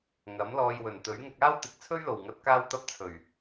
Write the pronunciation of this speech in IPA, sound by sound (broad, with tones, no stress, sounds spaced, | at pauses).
ŋ ɐ˨˥ m l ɔː˧ j w ɵ˨˩ n t̪ ɵ˨˥ ɥ ŋ ʊ˧ k̚ aː˥ w t̪ ɪ˨˥ k̚ t͡sʰ ɵ˥ ɥ l o˨˩ w ŋ ɐ˨˥ t̚ k aː˧ w t̪ ɐ˧ p̚ t͡sʰ ɵ˨˩ ɥ